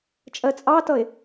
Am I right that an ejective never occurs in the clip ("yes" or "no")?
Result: no